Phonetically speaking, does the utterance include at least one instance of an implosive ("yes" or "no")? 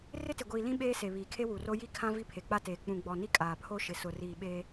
yes